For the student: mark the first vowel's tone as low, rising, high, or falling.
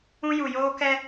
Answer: high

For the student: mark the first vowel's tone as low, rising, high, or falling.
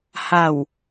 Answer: low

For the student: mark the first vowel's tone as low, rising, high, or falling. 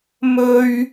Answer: high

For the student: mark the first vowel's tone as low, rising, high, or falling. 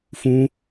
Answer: high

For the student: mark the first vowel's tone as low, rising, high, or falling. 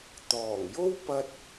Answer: low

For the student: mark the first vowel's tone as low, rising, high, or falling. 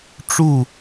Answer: falling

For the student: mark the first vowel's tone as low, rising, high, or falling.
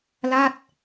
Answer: falling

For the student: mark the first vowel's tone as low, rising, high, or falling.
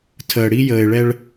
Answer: low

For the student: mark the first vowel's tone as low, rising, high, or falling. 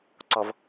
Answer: low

